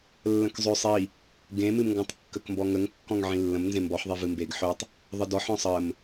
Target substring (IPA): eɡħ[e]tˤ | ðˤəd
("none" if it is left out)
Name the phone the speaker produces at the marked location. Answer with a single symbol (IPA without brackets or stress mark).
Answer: ø